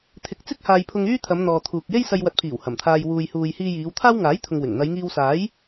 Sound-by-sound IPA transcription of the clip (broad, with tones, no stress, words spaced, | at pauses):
t̪ʰɪ˨˥k̚t͡sɪ˥k̚ haː˧jpʰʊ˧ŋyː˥t̪ʰɐ˨˧m n̪ɔː˨t̪ʰuː˨k̚ je˥jsɐ˧j wɐ˨t̚pʰiː˨˩w hɐ˨˩mt̪ʰaː˧j wuː˨jhuː˨j hiː˧jiː˨˧wt̪ʰaː˥w ŋaː˨˥jt̪ʰʊ˨ŋwɪ˨˩ŋ n̪ɐ˨˧jŋiː˧wsaː˨˥j